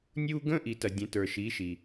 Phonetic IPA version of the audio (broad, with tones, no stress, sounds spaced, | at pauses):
nʲ u˥ ɡ ə̃˥ ʔ i˨ t ɐ˨ dʲ ə̃˨˥ t ə˞˨ ʃ i˨˥ ʃ i˨